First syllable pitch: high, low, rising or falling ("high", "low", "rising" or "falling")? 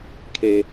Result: low